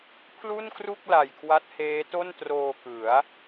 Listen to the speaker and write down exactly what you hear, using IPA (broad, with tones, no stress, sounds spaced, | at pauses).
pʰ l u˥˩ n k r u˥˩ k̚ l a˨˩ j kʰ w a˦˥ t̚ h eː˦˥ t o˥˩ n t r oː˧ k ɯ˩˦ a̯